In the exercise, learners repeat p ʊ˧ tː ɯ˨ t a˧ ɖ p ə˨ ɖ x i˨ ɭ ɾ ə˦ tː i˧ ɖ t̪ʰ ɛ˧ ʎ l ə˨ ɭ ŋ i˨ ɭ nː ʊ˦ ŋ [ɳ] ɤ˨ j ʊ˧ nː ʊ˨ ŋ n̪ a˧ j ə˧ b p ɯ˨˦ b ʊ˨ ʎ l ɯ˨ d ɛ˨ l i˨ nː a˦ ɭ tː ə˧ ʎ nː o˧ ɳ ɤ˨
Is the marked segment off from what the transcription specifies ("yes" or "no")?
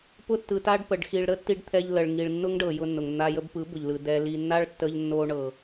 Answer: yes